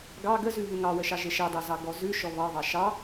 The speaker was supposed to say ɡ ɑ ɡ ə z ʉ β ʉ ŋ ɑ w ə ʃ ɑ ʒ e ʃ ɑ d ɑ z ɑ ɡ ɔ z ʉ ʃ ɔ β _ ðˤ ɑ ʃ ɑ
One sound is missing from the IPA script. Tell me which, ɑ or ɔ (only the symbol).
ɑ